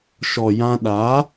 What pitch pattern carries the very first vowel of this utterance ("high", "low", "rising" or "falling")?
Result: low